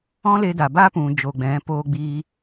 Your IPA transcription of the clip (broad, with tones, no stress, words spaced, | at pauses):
ɔ̃˦le˧da˨baː˦ pũ˨ d͡ʒo˨ɡ͡bɛ̃˨˦poː˧ɡ͡biː˧